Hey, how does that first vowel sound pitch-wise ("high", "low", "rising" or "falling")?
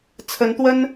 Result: rising